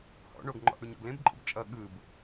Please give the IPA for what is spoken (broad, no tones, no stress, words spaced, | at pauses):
hɔ̰ ɳoɡŋ͡ǃɔ̰ʔ ɽuɲɔ̰ɡlẽbǃʼə̰b t͡ʃʼʌ ɠɯb